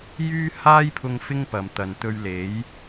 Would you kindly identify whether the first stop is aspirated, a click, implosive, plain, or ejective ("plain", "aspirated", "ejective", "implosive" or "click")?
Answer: aspirated